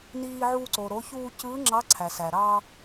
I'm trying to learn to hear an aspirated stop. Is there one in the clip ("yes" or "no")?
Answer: yes